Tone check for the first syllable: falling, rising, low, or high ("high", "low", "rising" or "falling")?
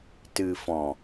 low